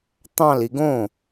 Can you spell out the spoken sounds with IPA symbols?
t̪ ɑ̃ l i ɡ õ

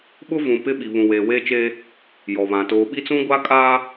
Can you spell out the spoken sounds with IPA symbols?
ɓ ʊ˦ v ũ˨ p ɪ˦ ɓ i˨ β ũ˨ w eː˨ w eː˦ t͡ʃ eː˦ | j ɔ˨ β ã˨ t oː˨ ɓ i˦ t͡s ũ˦ ɡʷ a˦ kʼ aː˦

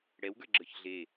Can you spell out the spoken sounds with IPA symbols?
ɽ ɛ w ɡ ə˞ ɡ͡ǁ ə˞ ç ɮ e

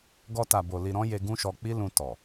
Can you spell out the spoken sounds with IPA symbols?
ɡ ɔ˧ t a˨ b o˨ l i˨ ɾ ɔ̃˧ j e˧ ɡ ũ˦ ʃ ɔ˧ k͡p i˦ l ũ˧ t ɔ˨

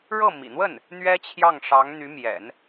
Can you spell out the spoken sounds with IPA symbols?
ɻ ɤ˥˩ m ḭ˨˩ n̪ w ə˥˩ n | n̪ ɥ ɛ˥ t͡ɕʰ j ɑ˥˩ ŋ ʂ ɑ˧˥ ŋ n̪ y˧˥ m j ɛ̰˨˩˦ n

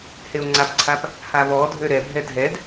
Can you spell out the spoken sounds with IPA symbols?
h e o̯ ŋ͡ǀ a p ǀʰ a p | h a β ɔ dʱ ø ɾ ɛ bʱ ɛ dʱ ɛ d

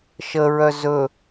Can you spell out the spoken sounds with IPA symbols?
ʃ ə ɹ œ z ɵ

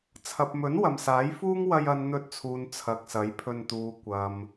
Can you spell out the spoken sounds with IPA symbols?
t͡sʰ ɐ˨ p̚ m ɵ˨˥ n w ɐ˨ m s aː˨˥ j f uː˥ ŋ w ɐ˧ j ɐ˧ n n̪ ɵ˧ t̚ t͡sʰ uː˨ n t͡sʰ ɐ˨ k̚ s ɐ˨˥ j pʰ ɵ˧ n t̪ uː˨˧ kʷ ɐ˨ m

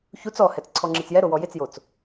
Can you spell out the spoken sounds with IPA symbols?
ç u t͡s ɔ h ɛ t͡s ǀʰ ɔ ŋ͡ǁ i t͡s j ɛ ɾ o w ɔ j ɪ t͡s j o t͡s

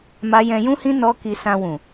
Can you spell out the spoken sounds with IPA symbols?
m a˦ j ɛ̃˧ j ũ˦ h ĩ˦ n ɔ˦ k i˧ s ã˧ w ũ˨

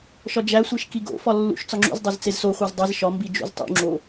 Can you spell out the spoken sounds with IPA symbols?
ʃ ɒ d͡ʒ æ sʷ e ʃ k i ɡ o̰ f ɒ lː ṵ ʃ t͡s ɒ ŋ͡ǁ ṵ z dˤ o z t͡s e z s o χʷ e z dˤ i z ʃ ɒ m b i d͡ʒ ṵ z tˤ ṵ ŋ͡ǁ o

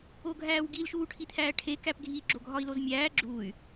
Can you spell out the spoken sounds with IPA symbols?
o ɡʱ æː w ɡ i l ʃ uː ʈʰ i t̪ʰ æː ʈʰ e k æ p ɡʱ i ɡ͡ǁ o ɡʱ ɒ i̯ l o z mʲ æː ɡ͡ǁ u y̯

